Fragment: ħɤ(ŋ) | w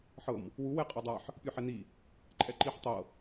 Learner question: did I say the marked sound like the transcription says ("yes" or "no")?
no